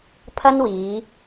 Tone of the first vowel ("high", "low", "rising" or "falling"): high